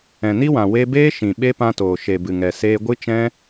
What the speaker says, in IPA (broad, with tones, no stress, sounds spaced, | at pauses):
ɛ̃˨ n i˦ w ã˨ w e˧ b eː˦ ʃ ĩ˨ ɓ e˦ p ã˧ t oː˨ ʃ e˨ b ɨ˨ ŋ ɛ˨ s eː˧ ɡʷ ɨ˦ t͡ʃ ɛ̃˦